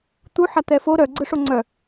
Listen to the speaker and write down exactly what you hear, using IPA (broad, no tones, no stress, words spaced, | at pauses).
t̪u ħat̪ɛfo ɾœɡ͡ǀɯʂo ŋ͡ǀœ